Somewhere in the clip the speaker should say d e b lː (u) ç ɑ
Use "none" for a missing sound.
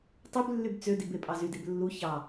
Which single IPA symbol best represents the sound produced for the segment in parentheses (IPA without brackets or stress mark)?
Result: u